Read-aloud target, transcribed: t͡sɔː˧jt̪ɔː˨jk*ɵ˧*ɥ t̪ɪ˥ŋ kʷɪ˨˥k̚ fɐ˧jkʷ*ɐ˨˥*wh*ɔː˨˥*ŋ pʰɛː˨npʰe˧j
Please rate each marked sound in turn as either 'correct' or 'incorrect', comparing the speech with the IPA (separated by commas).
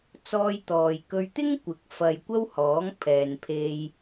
correct, incorrect, correct